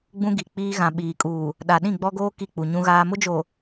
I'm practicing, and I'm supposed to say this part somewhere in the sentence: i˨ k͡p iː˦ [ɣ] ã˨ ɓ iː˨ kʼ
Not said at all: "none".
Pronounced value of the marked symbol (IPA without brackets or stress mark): ɣ